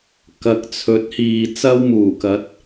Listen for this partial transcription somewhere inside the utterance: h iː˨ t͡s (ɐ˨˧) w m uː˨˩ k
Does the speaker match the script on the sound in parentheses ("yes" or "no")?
no